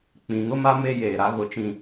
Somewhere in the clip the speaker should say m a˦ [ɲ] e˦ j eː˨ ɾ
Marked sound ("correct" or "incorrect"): incorrect